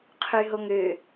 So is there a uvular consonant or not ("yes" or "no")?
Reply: yes